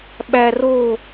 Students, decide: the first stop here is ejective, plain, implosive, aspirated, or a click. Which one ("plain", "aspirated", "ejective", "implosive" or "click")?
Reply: implosive